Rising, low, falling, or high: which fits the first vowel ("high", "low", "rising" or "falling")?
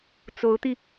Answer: rising